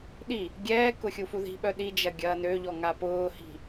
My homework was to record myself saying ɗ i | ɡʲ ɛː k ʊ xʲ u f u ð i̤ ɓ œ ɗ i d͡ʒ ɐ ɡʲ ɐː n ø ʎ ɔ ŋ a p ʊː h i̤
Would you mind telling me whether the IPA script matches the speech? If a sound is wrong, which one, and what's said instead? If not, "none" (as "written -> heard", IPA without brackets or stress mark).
none